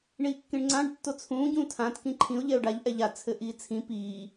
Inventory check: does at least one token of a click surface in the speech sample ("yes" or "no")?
yes